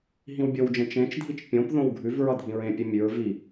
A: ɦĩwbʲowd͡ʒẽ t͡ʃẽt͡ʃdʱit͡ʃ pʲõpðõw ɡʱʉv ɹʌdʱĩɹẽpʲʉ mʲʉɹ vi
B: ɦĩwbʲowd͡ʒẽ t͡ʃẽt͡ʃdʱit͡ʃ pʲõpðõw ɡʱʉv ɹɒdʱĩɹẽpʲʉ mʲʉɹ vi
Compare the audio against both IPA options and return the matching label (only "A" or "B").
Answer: A